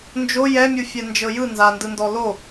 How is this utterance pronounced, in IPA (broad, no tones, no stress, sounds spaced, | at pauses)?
n d͡ʒ o j ɛ mʲ u fʲ ɛ n d͡ʒ ɤ j ɯ n z a n d ɯ n d ɔ l o